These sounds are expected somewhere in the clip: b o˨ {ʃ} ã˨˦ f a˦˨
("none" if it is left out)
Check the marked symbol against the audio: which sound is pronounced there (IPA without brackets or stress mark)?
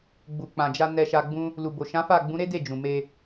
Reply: ʃ